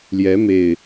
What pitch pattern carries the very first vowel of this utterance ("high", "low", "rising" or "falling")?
rising